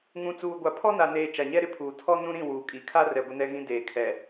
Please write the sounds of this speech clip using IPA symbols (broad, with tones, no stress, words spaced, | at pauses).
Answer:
ŋũ˨t͡suː˨ ɡʷa˨pʰɔ˦na˨neː˨ t͡ʃa˨ɲɛ˦ɾɪ˦pʰuː˨ tʰɔ˦nũ˦ɾĩ˦˨ wuː˨kʼi˨kʰa˦ rɛ˨ ɡʷɪ˦nɛ˦ɣĩ˦ deː˨kʰɛ˨